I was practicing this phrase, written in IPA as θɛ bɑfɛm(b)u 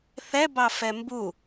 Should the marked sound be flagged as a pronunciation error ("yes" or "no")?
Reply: no